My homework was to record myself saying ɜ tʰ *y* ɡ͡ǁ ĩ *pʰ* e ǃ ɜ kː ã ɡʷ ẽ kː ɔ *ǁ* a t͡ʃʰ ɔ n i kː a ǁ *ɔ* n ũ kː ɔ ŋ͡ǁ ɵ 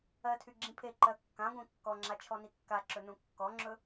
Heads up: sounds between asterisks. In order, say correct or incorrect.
correct, correct, incorrect: ŋ͡ǁ, incorrect: ɵ

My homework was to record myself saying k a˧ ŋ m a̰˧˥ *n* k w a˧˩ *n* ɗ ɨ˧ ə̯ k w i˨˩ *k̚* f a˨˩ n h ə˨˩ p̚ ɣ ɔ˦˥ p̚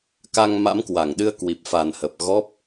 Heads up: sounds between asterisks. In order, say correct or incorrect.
incorrect: m, incorrect: ŋ, incorrect: p̚

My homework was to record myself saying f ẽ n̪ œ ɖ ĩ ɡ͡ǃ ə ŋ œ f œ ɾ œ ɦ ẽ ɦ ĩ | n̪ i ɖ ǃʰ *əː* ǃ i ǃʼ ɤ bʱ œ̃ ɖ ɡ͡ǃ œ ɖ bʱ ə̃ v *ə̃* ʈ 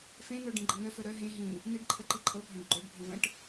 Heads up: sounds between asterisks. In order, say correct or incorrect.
incorrect: ə, correct

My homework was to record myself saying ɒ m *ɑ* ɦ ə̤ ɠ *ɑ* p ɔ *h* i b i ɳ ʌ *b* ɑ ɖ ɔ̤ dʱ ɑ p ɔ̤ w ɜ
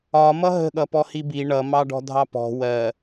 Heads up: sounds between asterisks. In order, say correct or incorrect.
incorrect: ʌ, incorrect: ʌ, correct, incorrect: m

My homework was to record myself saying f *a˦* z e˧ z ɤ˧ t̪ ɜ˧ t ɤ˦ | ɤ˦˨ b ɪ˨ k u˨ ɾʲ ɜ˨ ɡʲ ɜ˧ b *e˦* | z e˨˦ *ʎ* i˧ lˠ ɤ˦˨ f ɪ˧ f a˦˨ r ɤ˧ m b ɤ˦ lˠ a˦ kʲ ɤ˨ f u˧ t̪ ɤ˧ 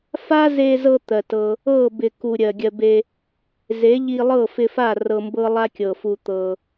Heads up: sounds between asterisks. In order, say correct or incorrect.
correct, incorrect: e˧, correct

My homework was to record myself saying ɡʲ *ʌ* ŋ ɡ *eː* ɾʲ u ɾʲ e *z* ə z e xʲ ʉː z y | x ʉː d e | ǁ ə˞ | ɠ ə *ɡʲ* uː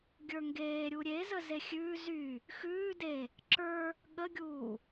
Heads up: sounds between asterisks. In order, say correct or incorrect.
incorrect: ə˞, correct, correct, correct

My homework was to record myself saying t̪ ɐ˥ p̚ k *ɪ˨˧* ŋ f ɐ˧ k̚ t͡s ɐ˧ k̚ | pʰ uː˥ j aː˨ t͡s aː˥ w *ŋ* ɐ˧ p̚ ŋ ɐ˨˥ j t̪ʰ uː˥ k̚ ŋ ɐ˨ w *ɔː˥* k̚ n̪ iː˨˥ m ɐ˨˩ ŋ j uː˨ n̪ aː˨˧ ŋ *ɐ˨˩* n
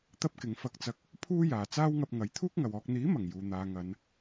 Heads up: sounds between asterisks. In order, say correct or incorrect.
correct, correct, incorrect: ɔː˧, incorrect: ɐ˨˧

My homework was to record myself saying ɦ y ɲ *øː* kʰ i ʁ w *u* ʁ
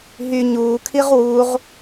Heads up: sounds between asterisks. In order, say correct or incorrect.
incorrect: uː, correct

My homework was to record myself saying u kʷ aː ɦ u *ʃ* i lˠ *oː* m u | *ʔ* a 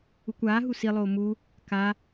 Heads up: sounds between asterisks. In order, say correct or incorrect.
incorrect: s, correct, incorrect: k

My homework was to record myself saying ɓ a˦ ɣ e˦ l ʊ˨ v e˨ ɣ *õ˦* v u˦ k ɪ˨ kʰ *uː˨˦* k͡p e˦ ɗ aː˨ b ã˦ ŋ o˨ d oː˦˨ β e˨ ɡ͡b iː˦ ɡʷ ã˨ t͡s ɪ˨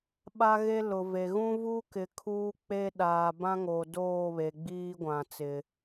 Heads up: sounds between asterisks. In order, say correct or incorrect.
incorrect: ũ˦, incorrect: uː˦

